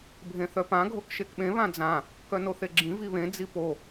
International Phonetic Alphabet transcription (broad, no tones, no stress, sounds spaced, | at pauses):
bʱ ẽ θ œ p ã ɡʱ o k ʃ e k ɓ ẽ β ã d͡z ã | k œ n o θ e ɡ͡ǁ ĩ v i β ẽ d͡z i p o